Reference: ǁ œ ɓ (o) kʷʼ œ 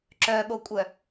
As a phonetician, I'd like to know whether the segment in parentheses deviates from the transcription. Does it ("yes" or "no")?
no